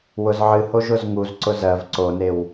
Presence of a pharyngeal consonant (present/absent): present